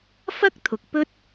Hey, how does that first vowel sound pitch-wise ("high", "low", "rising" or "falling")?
high